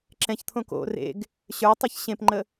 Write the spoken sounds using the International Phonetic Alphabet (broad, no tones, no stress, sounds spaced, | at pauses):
ǁ ɛ̃ ç t̪ʰ õ k o̰ r ḛ ɡ | ɕ ə˞ tˤ ə˞ ç ɕ ẽ p ŋ͡ǃ ə